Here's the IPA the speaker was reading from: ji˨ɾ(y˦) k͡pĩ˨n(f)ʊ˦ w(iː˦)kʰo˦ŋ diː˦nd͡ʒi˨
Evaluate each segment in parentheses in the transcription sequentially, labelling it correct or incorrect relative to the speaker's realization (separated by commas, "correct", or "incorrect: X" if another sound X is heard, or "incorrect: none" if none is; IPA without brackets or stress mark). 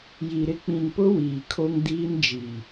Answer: incorrect: ɪ˦, incorrect: p, incorrect: iː˨